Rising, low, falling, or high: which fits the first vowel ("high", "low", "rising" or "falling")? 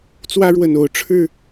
high